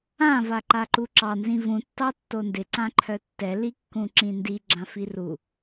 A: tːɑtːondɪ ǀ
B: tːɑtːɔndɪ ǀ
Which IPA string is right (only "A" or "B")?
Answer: A